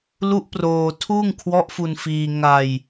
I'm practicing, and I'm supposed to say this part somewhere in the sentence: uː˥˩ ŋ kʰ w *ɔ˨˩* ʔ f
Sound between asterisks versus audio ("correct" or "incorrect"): incorrect